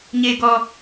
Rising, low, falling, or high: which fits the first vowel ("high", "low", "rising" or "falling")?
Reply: low